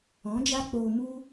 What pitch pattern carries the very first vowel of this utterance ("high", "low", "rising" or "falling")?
rising